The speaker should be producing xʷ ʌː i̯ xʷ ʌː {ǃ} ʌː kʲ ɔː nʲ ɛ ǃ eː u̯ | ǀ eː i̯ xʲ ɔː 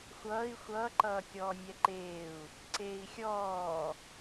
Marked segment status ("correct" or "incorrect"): correct